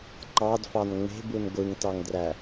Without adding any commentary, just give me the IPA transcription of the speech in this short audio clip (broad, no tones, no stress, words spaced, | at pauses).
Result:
ǃɑdfɑn ŋ͡me̤bun ɡʷɯŋtɑŋdræ